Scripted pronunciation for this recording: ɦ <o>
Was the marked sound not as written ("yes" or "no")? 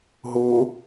no